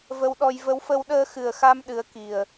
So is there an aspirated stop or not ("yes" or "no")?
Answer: no